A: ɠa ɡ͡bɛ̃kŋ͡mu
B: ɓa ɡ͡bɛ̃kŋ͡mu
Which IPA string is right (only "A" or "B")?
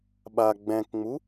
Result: B